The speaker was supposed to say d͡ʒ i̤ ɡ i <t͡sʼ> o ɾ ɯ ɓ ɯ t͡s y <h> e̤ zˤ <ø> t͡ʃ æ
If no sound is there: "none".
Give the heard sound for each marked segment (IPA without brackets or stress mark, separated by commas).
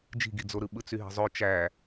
d͡z, ɦ, ø